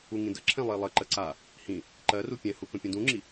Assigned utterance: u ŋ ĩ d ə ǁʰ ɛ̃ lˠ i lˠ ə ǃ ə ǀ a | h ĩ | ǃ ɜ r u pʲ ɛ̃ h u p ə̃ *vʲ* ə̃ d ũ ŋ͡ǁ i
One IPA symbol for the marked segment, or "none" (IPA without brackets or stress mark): pʲ